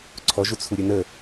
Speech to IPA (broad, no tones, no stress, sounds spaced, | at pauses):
ǀʰ ɔ ʒ u t͡sʰ u ɾʲ ə n ə